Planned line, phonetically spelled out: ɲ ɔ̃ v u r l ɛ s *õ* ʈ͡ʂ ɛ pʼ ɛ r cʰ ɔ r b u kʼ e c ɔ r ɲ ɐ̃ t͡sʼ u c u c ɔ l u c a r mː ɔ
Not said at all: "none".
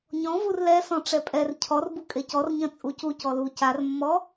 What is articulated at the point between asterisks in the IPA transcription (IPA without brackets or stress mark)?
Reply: ɔ̃